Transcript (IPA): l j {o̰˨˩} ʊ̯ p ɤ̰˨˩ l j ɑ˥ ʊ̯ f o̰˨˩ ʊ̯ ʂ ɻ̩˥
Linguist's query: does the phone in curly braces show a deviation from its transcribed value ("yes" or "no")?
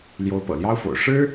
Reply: yes